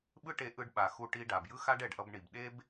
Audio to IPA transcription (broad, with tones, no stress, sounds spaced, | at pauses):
ɓ ɯ˥ ʈ e˧ ʔ ɯ˧ ɖ ɓ a˩ x u˧ ʈ i˧ ɖ a˩ b j ɯ˥ x a˥ ɖ ɛ˩ ɖ ʔ ʌ˧ b ɳ i˩ b ɗ e˥ b